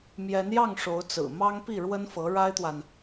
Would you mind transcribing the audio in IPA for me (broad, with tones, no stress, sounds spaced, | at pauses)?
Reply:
m j ɛ˧˥ n j ɑ˥˩ ŋ ʂ o˧˥ ʊ̯ t͡s ɹ̩˨˩ m ɑ˥ ŋ p i˥˩ ɻ w ə˥ n f ɤ˧˥ ɻ a˥ ɪ̯ t̪ w a˨ n